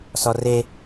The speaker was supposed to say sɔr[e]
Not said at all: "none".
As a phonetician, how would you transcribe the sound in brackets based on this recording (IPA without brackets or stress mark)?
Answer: e